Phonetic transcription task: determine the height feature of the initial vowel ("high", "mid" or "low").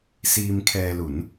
high